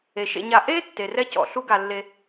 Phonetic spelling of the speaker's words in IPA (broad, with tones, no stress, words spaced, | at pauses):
e˩ʃḛ˨ɲa˨ ʔe˥ tːe˩rɛ˥cɔ̰˨ ɬu˥ɡa˨lːe˨